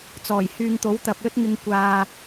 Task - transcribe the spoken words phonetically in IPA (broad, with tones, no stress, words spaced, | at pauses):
t͡sɔː˨˩jhyː˨ŋt̪o˨˥w t̪ɐ˨p̚lɵ˥t̚ŋɪ˧ŋ kʷaː˥